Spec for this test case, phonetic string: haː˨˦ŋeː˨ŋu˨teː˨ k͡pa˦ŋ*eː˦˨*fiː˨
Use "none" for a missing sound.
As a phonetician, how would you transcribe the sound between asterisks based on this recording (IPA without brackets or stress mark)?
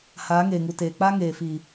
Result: eː˨